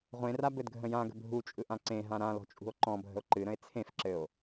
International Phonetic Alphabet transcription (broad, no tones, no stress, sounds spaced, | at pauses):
ʁʷ ẽ r a b ɘ d ɡʱ ə̃ j ã ɡ ə̤ bʱ u t͡ʃʼ ɯ ʔ ã ǀ ẽ ɦ ã ɾ ã l ɔ̤ t͡ʃʼ ṳ o̯ ǃ ɔ̃ bʱ ə̤ o̯ ǃ ɨ ɾ ə̃ e̯ t͡sʰ ẽ f ǁ ɘ o̯